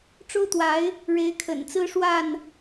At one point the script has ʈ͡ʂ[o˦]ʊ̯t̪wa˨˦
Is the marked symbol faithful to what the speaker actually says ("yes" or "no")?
yes